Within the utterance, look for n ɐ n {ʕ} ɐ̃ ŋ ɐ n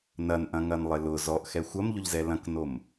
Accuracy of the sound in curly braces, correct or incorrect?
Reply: incorrect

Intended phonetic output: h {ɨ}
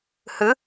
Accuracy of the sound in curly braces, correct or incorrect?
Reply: correct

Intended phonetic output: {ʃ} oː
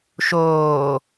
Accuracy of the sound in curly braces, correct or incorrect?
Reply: correct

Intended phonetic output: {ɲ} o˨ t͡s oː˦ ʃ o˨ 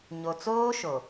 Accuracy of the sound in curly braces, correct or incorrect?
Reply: correct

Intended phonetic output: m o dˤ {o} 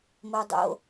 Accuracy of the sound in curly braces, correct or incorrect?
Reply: incorrect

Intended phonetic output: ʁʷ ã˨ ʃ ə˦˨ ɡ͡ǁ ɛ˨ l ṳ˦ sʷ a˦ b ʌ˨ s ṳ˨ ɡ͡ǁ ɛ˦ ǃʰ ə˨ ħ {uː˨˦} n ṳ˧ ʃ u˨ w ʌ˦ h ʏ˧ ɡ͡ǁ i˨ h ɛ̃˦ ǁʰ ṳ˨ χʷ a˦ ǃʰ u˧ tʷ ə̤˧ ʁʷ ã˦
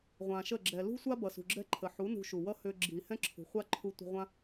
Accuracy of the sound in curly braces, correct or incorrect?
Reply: incorrect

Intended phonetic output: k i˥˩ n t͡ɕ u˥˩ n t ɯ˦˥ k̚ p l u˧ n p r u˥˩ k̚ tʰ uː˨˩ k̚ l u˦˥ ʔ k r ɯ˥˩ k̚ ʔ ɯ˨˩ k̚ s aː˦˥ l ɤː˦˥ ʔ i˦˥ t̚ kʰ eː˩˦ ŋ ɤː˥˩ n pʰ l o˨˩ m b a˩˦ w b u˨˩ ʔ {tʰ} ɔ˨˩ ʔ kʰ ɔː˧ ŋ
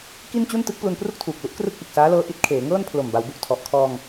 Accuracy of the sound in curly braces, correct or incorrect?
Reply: correct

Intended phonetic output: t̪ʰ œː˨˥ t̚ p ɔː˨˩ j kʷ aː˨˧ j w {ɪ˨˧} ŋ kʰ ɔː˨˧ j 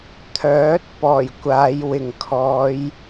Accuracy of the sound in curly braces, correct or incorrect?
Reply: incorrect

